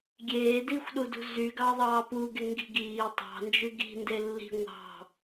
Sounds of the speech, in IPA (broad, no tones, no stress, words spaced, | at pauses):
ɡʲeː dixʷɗudṳ zyɡɑðˤɑː puɡe ŋɡi̤ɡiː tˤɑ̤nd͡ʒy ɡi̤ ndelːi̤ ŋʷɑ̤